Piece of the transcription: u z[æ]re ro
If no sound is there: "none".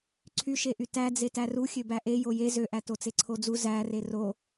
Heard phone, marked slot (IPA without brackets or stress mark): æ